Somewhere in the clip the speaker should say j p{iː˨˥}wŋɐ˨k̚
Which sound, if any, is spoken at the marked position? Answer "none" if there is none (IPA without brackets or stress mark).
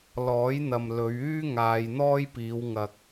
iː˨˧